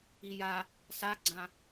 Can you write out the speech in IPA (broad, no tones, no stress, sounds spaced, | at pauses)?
i j a | s a ɡ͡ǀ ã